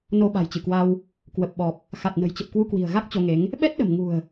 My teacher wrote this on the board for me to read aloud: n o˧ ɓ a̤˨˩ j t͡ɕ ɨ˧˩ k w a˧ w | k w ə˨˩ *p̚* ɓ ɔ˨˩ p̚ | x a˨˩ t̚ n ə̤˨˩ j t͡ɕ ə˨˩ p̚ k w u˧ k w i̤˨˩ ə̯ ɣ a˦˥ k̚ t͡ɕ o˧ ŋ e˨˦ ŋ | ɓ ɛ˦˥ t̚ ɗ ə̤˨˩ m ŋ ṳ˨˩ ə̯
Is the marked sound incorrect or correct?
correct